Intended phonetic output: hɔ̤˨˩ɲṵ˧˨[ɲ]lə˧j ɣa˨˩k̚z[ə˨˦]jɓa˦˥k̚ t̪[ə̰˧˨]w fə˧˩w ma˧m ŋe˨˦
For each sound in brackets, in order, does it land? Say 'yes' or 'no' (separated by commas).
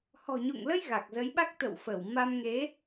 no, yes, yes